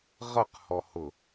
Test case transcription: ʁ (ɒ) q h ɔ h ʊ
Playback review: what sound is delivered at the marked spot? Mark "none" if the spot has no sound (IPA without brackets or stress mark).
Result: ʌ